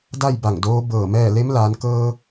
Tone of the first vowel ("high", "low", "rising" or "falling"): falling